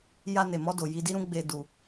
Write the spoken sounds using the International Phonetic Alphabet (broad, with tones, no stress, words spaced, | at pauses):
ja˧ne˨mɔ˧ do˨ji˧di˦ɾũ˦ ɡ͡be˧ du˧